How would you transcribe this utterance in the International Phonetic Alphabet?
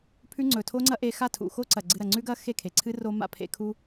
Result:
pʰ ʉ˦ ŋ͡ǀ ɵ˨ tʰ o˦ ŋ͡ǀ ɐ˦ ʔ e˧ x a˦˨ tʰ ṵ˨ x o˦ ǀ ɐ˨ ɡ͡ǀ ɨ˧ ɾ ɐ˨ ŋ͡ǀ ʉ˦ ɡ ɐ˦ x e˦˨ kʰ e˨ ǀʰ ɨ˦ r o˦ m a̰˧ pʰ ḛ˧ kʰ u˦

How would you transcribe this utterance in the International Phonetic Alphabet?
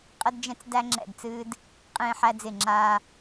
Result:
qʼ ə˦ d d͡ʒ ɛ̃˦ t͡s d æ˦ ŋ͡ǁ ɛ̰˦˨ d t͡s ɨː˦ d | qʼ ẽː˦ ħ æ˦ d͡z ɪ˦˨ ŋ͡ǁ aː˦

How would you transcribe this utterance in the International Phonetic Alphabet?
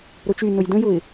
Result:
ɾ ʊ t͡ʃ y n ʊ j d ə̃ j ʊ ɪ̯

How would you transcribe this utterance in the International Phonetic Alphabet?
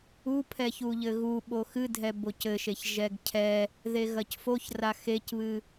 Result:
u pʰ ɛ ç u ʎ ɘ ɣ u ɓ o x ɨ dʱ ɛ b o c ɘ ʃ e ç ʒ ɛ ɡ cʰ ɛ | ð e ɣ ɐ c f o ç r a x e c β ɨ

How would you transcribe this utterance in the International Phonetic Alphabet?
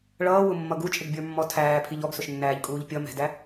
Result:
ɭ ʌː w ʊ mː ʌ ɡ u t͡ʃʼ ɪ ɡ bʲ ə˞ mː ɔ tʰ æː pʰ i ʎ ɔ ɡ s ʊ ʃ nː æː ʎ kʼ uː ʎ pʲ ʌ m ɛ̤ d æ

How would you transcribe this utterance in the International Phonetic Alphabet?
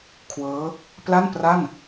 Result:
kʰ w ɤː˦˥ | p l a˥˩ n p r a˥˩ n

